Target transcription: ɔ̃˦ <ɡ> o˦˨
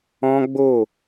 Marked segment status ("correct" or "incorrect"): incorrect